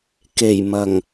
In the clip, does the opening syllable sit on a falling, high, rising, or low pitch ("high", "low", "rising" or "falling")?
low